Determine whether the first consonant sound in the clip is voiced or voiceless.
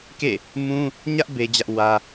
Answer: voiceless